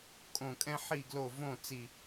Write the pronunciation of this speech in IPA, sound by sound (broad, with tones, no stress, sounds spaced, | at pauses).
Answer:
kʼ õ˧˩ kʼ ɛ̃˥ ħ i˥˨ ɡ l o˥˨ v õ˥˨ t͡s i˧˩